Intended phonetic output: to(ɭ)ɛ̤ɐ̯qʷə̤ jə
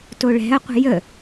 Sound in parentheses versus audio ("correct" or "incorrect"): correct